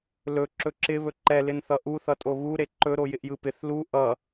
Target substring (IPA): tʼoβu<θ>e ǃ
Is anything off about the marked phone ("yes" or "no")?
yes